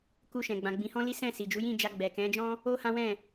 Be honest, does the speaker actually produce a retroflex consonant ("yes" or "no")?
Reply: no